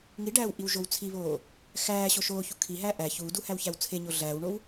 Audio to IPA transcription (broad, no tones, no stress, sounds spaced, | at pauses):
ŋ i ɖ æː w ʔ i w ʒ o w t͡sʰ i β oː | x æː ɕ o ʃ oː ç u kʰ i ɦ æː ʔ æ ç uː d u h æ w ç æ w t͡sʰ e ɲ o ɮ æː w ɳ o w